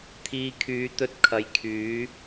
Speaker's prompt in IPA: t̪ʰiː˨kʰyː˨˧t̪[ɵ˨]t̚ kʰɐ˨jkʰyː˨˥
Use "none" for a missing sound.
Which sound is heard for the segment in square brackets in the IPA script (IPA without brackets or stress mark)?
ɵ˧